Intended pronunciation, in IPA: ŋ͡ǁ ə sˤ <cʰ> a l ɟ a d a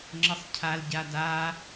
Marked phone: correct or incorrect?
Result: correct